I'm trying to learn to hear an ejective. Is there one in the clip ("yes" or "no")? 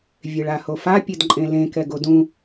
yes